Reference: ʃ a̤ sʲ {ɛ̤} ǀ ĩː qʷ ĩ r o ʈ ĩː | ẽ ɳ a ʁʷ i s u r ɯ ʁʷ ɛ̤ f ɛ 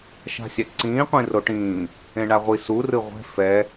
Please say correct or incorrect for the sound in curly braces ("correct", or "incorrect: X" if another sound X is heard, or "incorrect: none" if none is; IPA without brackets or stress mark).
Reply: incorrect: ɛ